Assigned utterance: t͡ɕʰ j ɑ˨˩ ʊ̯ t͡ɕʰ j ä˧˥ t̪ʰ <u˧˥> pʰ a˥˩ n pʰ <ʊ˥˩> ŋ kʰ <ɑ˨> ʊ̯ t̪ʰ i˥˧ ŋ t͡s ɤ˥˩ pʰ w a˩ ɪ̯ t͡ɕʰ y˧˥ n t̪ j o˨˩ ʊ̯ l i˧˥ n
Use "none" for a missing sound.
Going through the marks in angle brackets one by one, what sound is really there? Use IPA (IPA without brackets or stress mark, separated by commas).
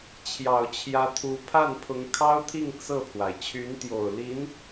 u˧˥, ʊ˧˥, ɑ˥